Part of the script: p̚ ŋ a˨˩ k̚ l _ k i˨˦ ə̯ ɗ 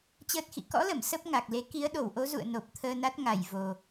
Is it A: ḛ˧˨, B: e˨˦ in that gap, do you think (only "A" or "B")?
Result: B